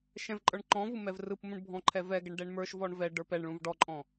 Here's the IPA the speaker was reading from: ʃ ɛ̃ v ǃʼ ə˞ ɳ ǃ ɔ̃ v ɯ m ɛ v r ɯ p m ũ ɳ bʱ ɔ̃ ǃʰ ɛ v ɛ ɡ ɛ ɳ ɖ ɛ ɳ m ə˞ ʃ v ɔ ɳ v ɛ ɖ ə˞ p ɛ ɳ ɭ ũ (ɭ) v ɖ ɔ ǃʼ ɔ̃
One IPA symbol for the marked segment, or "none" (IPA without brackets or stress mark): none